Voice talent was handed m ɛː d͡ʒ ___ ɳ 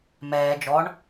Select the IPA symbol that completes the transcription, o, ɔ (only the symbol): ɔ